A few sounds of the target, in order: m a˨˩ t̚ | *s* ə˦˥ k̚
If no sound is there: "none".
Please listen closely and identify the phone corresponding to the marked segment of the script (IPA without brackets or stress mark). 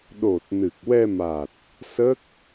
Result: s